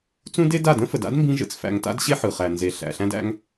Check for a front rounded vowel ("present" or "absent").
absent